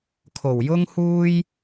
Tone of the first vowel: low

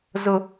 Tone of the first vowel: high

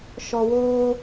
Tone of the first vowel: low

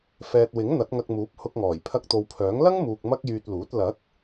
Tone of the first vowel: low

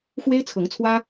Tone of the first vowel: high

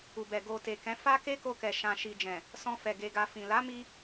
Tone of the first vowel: low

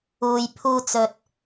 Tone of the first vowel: low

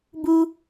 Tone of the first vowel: high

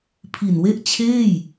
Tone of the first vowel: low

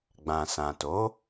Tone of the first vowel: low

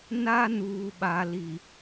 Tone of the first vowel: high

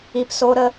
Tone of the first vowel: low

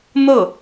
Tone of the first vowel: falling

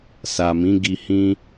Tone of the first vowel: low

